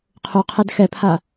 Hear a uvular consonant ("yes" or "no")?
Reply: yes